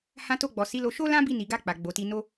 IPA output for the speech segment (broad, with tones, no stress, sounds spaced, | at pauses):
h ã˧ t o˧ ɡ͡b ɔ˨ s i˨˦ l o˧ ʃ o˦ l ã˦ b i˧ n i˨ ɡ a˧ k͡p a˨ ɡ͡b o˨ t i˧ n o˦